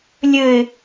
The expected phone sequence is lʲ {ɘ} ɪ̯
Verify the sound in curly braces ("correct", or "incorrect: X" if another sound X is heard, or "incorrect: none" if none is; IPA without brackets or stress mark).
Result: correct